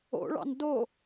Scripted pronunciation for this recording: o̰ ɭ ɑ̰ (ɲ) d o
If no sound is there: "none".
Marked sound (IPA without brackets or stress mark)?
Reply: n